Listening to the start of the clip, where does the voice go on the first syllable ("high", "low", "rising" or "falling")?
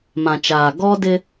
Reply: low